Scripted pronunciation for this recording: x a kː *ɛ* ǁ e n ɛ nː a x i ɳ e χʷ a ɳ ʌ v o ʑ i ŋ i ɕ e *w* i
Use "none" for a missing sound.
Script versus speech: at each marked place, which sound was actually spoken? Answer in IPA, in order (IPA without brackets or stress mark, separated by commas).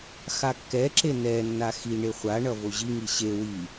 ɛ, w